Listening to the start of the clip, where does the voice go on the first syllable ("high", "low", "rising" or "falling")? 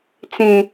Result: high